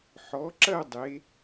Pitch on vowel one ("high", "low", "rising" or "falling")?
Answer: rising